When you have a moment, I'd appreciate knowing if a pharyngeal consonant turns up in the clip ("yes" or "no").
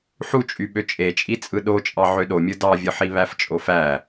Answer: yes